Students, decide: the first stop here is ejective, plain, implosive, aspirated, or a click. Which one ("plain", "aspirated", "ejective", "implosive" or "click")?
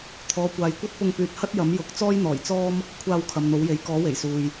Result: aspirated